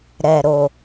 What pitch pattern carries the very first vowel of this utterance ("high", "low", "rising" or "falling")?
low